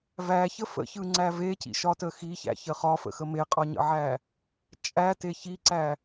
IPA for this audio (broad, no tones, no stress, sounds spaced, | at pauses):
v æ ç ə f ə̰ ç ɯ ŋ͡ǀ æ v e c ḭ ʃ ɒ t ə x i ç æ̰ ç ə χ ɒ f ə̰ x ə m e qʼ ɒ ɲ ə̰ ʕ æ | t͡ʃʼ æ t e ç i ǀ æ